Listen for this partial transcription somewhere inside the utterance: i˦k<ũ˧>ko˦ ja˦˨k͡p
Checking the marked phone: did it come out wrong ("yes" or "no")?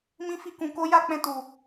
no